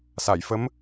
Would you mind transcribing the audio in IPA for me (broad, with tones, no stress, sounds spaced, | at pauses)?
s a˨˩˨ j f ə˧˥ m